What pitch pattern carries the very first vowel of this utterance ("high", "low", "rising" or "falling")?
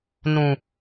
low